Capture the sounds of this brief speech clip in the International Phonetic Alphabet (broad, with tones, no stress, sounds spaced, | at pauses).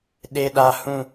ɗ e˨ ɗ a˨ h ũ˦˨